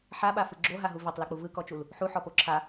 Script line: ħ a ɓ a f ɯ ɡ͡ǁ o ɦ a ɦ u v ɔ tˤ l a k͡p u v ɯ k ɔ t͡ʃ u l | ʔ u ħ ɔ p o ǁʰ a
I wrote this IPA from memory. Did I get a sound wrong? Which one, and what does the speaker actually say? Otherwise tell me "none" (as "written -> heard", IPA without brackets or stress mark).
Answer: ʔ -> ħ